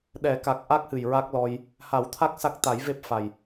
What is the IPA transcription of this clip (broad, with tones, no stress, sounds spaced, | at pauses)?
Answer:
ɗ ɛ˨˩˦ k a˨˩ k̚ ʔ a˦˥ k̚ h ɨ˨˩ j ɹ a˦˥ k̚ l ɔ˧ j | h a˨˩˦ w t̪ʰ a˦˥ k̚ s a˦˥ k̚ t̪ a˨˩˦ j v e˦˥ p̚ f a˨˩ j